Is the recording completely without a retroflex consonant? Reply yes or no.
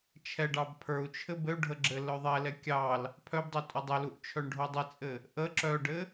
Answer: no